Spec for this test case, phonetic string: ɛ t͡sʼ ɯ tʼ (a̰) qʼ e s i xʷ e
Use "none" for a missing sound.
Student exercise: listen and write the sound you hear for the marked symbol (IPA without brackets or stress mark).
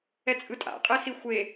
a̰